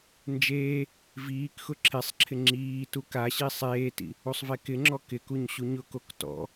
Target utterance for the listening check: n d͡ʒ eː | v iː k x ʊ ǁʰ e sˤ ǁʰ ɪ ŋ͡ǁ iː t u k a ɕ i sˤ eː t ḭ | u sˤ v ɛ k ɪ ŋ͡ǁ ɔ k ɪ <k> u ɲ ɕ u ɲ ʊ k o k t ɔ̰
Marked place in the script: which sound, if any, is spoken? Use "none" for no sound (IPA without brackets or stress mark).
k